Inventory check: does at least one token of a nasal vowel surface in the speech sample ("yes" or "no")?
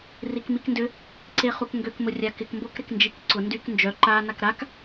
no